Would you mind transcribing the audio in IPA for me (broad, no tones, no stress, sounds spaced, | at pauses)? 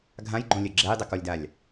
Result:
ɡʱ ã j ɡ͡ǃ õ lʲ ɘ ɡ͡ǁ ɛ j dˤ ɛ k ɔ lʲ d a lʲ